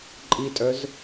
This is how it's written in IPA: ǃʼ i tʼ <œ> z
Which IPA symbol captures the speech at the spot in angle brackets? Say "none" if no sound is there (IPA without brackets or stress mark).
œ